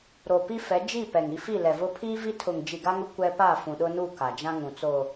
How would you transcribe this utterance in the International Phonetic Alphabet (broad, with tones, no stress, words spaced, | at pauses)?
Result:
ɾo˨pi˦fɛ˨˦ d͡ʒi˦˨ pɛ˨ŋi˦ fi˦˨lɛ˨vʊ˦ pʰi˦vi˦tʰʊ˨ŋ d͡ʒi˨ɡa˦ŋʊ˦ kʷɛ˦ pa˦˨fũ˨ɗʊ˦ nu˦˨ ka˨d͡ʒã˦ŋũ˨t͡so˨